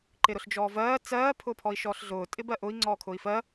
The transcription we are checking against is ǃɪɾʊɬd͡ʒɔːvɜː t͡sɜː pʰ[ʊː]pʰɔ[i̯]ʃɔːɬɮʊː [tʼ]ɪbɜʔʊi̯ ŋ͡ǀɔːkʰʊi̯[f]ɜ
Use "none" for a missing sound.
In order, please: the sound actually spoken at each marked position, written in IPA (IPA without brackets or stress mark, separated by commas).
ʊː, i̯, tʼ, f